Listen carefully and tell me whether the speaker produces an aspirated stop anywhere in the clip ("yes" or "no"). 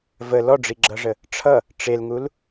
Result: yes